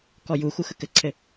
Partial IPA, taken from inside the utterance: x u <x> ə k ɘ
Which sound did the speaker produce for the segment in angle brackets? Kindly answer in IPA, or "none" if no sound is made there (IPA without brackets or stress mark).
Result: x